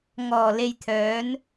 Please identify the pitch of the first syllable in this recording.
low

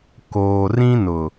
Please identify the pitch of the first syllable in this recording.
low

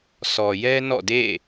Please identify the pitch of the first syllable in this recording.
low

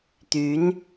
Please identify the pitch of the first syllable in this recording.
rising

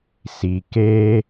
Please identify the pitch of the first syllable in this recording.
low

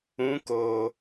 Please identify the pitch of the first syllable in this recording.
rising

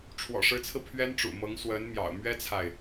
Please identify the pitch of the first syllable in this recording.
low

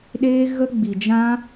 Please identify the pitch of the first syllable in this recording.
high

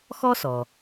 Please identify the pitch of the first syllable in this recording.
high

